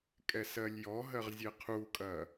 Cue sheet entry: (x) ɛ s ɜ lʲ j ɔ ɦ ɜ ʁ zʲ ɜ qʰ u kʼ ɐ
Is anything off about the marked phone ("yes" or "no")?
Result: yes